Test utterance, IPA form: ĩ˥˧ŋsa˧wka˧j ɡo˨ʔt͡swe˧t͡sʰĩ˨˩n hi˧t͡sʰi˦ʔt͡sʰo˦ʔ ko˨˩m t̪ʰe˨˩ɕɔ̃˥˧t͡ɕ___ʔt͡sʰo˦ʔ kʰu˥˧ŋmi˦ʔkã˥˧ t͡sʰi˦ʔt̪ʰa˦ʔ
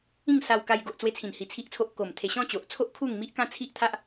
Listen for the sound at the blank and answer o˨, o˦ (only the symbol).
o˨